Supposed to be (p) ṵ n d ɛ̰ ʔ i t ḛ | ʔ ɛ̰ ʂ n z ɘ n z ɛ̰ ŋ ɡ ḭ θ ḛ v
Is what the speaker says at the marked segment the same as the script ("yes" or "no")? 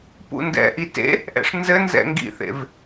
yes